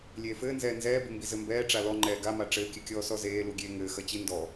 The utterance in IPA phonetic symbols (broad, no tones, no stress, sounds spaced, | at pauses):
lʲ eː f ɘː n z ɛː n z ɛː b ɨ m b i z ɘ m b ɛː ʈ͡ʂ a l ɔ ŋ͡ǃ ɛː ɡ a m a ʈ͡ʂ ɘː kʲ ɨ kʲ ɔː s ɔ z eː l u ɡʲ eː ŋ ɘː x ɐ t͡ɕ i n d ɔ